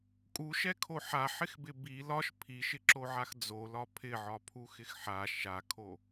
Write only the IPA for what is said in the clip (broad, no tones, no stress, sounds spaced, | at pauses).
kʼ u ʃ ɛ kʰ o ħ a ħ ɪ x b ɪ b i l ɒ ʃ pʰ i ʃ ɪ ǁ o ʕ a x d͡z o l ɒ pʰ ɪ ʕ ɒ pʰ u x ɪ x ħ a ʃ a kʰ o